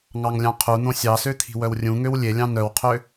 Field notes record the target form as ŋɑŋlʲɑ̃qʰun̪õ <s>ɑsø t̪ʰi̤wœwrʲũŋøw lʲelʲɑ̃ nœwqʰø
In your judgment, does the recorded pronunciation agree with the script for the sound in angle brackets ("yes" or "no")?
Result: no